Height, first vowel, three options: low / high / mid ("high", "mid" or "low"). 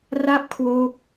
low